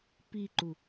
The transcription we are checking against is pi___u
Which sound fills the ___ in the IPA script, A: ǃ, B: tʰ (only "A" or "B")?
A